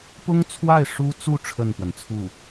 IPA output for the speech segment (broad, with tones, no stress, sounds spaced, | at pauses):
p ʊ˥ ŋ t͡sʰ w a˥˩ ɪ̯ ʂ u˥ t͡s u˥˧ ʈ͡ʂʰ ə˥˩ n p w ə˩ n t͡sʰ u˥˩